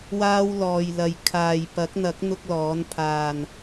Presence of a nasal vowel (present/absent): absent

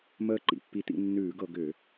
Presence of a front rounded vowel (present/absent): present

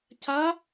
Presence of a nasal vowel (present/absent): absent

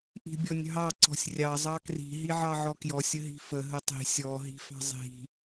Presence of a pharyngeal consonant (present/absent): present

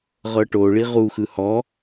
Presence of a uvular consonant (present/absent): present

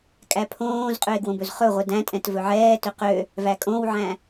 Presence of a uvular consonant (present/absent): present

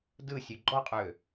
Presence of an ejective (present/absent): present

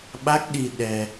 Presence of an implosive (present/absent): present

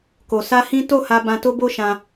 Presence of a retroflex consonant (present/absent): absent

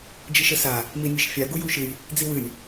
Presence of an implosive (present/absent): absent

